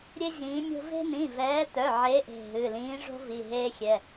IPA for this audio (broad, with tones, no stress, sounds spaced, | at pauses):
ɾʲ e˦ ʑ ĩː˨˦ mʲ o̤˦ v e̤˦ n ĩ˩˧˩ v ɛː˨˦ t œ˩˧˩ ʕ e˨˦ ʔ e̤˩˧˩ ɦ ɨ˩˧˩ l ĩː˨˦ ʐ o̤˦ v i˩˧˩ ɦ eː˦ xʲ ɛ˩˧˩